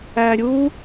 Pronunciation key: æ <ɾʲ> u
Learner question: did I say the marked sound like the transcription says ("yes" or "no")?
yes